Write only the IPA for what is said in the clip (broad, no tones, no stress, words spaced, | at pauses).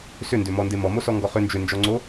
sʏndʏmɔnde mɔmosɔŋɡɔ χʏ nd͡ʒʏnd͡ʒɔŋ͡ǀo